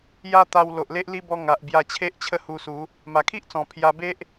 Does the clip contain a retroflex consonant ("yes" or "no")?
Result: no